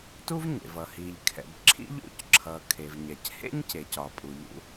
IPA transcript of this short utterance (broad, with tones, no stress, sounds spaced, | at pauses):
t u˥ v ɲ ḛ˩ v ʌ˩ h i˩ ʎ kʰ ɛ̰˩ b ǁʰ ḭ˥ ʎ ṵ˥ c ǁʰ ʌ˩ kʰ e˩ v ɲ ɛ˩ c h ḛ˥ ɲ c e˩ c ɒ˩ pʼ u˩ ʎ ṵ˥